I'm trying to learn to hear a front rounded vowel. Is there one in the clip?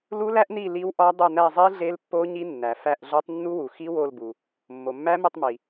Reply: no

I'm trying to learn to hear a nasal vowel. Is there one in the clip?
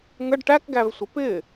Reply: no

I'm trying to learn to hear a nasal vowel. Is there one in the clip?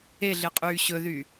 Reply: no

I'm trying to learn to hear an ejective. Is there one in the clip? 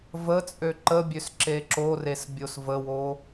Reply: yes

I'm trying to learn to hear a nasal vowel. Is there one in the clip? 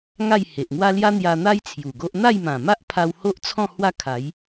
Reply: yes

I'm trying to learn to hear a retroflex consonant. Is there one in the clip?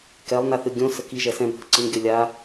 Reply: no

